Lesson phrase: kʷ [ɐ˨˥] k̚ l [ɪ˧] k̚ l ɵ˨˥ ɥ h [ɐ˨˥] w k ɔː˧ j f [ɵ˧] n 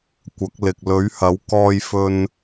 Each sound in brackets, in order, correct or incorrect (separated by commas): correct, incorrect, correct, correct